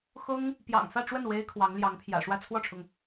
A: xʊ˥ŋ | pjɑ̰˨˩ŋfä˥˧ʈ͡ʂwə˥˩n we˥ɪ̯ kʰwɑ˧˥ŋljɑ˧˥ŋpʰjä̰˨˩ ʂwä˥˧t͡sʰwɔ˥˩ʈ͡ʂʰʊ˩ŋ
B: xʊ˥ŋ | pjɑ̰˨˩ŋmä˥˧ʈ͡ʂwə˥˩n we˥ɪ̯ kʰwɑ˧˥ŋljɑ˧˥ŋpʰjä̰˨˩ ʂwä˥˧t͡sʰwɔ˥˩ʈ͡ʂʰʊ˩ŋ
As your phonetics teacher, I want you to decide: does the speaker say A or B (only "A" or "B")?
A